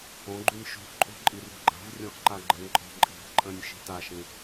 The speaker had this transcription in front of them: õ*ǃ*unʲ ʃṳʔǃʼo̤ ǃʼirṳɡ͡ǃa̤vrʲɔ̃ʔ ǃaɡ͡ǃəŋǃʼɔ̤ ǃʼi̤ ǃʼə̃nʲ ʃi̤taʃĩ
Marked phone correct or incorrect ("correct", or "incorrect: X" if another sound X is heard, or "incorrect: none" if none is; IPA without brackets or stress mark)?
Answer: incorrect: ɡ͡ǃ